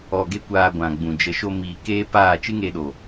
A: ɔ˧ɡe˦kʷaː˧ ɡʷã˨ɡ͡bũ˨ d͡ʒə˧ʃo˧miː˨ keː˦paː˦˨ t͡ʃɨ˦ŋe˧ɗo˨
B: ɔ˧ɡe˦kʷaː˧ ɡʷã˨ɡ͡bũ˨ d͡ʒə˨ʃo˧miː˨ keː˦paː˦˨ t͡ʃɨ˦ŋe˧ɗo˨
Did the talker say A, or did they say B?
B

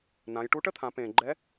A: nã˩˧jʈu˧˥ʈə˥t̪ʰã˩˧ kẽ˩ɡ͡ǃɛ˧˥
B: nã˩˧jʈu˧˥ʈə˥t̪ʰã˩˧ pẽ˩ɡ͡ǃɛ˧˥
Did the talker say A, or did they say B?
B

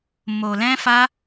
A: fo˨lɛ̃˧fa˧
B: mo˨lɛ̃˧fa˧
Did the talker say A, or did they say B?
B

